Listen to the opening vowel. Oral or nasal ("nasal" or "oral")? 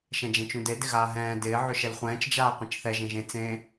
nasal